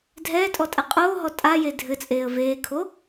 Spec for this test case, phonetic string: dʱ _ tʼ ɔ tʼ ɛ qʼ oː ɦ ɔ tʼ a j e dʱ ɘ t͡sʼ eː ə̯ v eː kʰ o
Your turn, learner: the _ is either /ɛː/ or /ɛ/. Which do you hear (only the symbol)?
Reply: ɛː